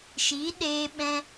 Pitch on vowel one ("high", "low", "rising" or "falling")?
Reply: rising